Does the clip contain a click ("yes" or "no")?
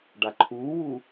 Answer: yes